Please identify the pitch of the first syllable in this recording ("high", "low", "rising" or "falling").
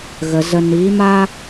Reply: low